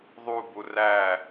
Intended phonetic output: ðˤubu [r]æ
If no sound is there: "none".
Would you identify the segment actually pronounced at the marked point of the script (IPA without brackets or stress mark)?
r